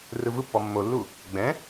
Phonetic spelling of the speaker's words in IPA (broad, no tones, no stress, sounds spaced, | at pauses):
r ɯ v ɯ pː ɔ mː o lː u | ɡ͡b ɛ̃